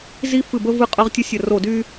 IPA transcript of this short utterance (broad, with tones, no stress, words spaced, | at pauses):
zi˥fɨ˦˨bə˥ vɨ˥qʼɤ˥ʁ tʲə˥sʲə˦˨ ro˦˨dy˥